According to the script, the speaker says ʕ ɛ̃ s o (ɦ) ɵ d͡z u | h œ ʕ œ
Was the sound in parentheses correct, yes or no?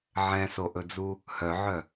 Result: no